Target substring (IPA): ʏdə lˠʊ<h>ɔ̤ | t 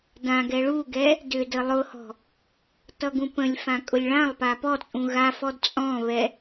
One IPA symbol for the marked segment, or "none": h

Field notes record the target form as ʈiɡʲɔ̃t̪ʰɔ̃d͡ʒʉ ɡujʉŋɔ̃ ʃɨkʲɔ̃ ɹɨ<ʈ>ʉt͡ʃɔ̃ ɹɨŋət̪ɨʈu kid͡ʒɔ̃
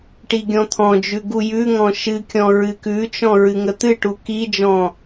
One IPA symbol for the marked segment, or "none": k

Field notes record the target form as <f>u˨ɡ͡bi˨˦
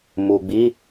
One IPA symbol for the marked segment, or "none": m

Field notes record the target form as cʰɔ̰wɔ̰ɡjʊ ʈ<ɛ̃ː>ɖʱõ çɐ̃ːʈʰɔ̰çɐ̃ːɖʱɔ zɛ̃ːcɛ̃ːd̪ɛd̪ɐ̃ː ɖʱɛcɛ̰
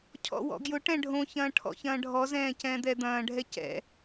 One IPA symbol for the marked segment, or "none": ɛ̃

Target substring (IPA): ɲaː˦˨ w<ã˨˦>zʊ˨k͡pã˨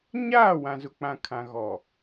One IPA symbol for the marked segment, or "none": ã˨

